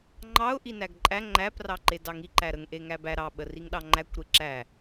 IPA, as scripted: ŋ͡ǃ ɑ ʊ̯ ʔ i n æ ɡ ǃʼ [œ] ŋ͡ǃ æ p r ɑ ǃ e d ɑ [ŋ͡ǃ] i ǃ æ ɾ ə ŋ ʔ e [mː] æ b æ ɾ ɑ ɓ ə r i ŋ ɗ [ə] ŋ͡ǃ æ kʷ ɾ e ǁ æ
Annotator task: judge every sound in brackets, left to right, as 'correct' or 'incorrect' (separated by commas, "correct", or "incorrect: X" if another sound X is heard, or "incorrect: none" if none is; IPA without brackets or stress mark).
incorrect: æ, incorrect: ŋ, incorrect: ŋ, incorrect: ɑ